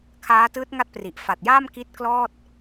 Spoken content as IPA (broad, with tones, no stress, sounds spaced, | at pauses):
kʰ aː˦˥ t ɯː˦˥ t̚ ŋ a˥˩ t̚ p r i˨˩ ʔ f a˨˩ t̚ j aː˥˩ m k i˦˥ t̚ k l ɔː˥˩ t̚